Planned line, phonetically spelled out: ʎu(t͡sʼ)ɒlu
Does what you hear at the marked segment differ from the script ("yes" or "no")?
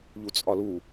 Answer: no